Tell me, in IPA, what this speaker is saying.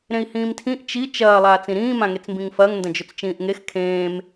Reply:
ɾ ẽ i̯ h ĩː m tʰ ĩ ʔ t͡ʃ i t͡ʃ ɐː lˠ aː t͡s ĩ ɾ ĩː m ã ŋ e t͡s m b ĩ ŋ f ɐː ŋ n d ɐ̃ d͡ʒ ɵ t͡s t͡ʃ ĩː ʔ ŋ e x kʰ ẽː m

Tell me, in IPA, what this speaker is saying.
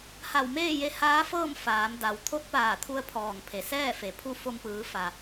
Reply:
h a˧˩ w m eː˥˨ j e˧ h aː˧˥ f ɤː˥˨ m f aː˩˧ m d a˩˧ w t̪ʰ o˧˥ t̚ p aː˧˩ t̪ʰ u˧ ə̯ pʰ ɔː˧˩ ŋ pʰ e˩ s ɛː˥˨ f e˩ pʰ u˥˨ f o˧ m p ɯː˩˧ f a˩

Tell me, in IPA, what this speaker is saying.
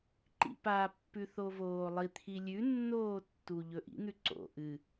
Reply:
ǃ ḭ p a pː ʉ θ o v oː lˠ i t̪ʰ i lʲ ʉ nː oː tː u ʎ ɵ ʔ ḭ n̪ ʉ ǀ o̰ ʔ ɨ

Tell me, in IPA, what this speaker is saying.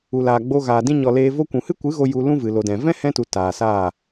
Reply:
u˨ l aː˨ ɡ͡b o˧ ɣ aː˨ d ĩ˧ ɲ ɔ˨ l eː˧ v o˦ kʷ ũ˨ h ɨ˦ kʷ ɨ˨˦ ɣ o˧ j u˧ l ũ˦ v ɨ˨ l o˨ d ɛ̃˨ v ɛ̃˦ h ɛ̃˧ t u˨ t aː˨ s aː˦˨

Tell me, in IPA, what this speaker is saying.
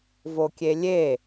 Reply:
v o kʲ e lʲ e

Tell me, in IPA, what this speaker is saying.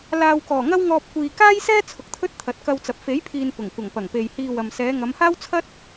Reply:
l aː˨ w k ɔː˨˩ ŋ ɐ˥ w ŋ ɔː˧ p̚ kʷ iː˨ k aː˥ j s ɛː˥ t͡sʰ ʊ˨ k̚ t̪ʰ ɵ˥ t̚ t̪ʰ ɐ˨˥ t̚ k ɐ˧ w t͡s ɐ˨ p̚ f e˨˥ j pʰ iː˨ n p ʊ˨˩ ŋ kʷ ɐ˨˩ ŋ p ɐ˨˩ ŋ p e˨ j h iː˧ w ɐ˨ m s ɛː˨˧ ŋ ɐ˨˧ m h aː˥ w t͡sʰ ɐ˥ t̚

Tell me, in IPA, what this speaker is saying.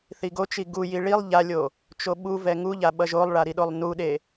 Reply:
θ i ɡ o t͡ʃ i ɡ u j i ɭ i lˠ ʎ a lʲ o | t͡ʃ o ɓ u v ɛ ŋ u ʎ a ɓ ʌ ʒ o lˠ ɭ a ɾ i ɗ o lˠ n u ɗ e

